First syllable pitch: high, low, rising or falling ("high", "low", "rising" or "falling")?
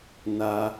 high